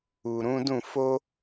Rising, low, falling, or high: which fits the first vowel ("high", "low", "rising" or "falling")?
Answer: low